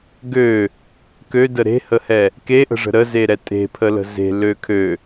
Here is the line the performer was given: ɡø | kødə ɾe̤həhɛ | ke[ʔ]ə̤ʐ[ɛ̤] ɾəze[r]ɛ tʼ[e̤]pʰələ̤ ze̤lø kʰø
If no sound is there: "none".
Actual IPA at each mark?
ʔ, ə̤, ɾ, e̤

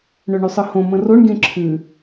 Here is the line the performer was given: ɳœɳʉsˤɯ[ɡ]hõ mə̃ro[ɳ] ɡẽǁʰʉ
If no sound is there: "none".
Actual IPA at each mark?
none, ɳ

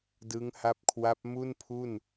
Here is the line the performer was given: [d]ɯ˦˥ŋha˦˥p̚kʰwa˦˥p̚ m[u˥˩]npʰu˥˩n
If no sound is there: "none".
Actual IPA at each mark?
d, u˥˩

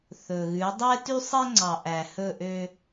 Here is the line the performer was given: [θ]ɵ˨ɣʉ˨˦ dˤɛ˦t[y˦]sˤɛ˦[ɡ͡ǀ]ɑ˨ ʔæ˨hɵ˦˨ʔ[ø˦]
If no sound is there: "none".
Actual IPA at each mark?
θ, y˦, ŋ͡ǀ, ø˦

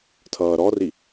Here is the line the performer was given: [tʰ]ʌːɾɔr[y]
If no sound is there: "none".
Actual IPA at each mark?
tʰ, i

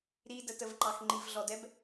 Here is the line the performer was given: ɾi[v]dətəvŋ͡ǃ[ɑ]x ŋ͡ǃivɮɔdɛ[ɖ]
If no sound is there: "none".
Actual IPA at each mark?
none, ɑ, b

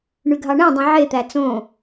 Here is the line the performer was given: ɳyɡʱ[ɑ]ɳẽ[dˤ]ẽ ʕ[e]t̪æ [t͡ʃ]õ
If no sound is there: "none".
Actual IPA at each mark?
ɑ, dˤ, e, t͡s

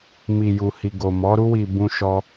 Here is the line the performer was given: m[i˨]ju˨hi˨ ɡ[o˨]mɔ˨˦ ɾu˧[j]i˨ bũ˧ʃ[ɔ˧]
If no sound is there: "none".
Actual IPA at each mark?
i˨, o˨, w, ɔ˧

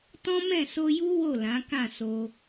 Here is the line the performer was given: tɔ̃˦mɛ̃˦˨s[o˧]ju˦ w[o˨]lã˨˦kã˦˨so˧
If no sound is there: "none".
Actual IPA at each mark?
o˧, o˦˨

